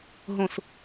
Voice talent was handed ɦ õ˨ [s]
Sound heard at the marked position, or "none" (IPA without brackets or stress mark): s